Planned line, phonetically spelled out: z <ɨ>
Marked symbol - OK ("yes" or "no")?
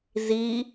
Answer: no